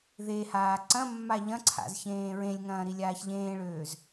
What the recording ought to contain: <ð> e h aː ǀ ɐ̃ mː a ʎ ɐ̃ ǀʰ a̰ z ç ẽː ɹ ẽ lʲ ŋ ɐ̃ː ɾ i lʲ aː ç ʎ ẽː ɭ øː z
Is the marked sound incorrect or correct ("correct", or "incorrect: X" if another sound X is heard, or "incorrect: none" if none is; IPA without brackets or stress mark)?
correct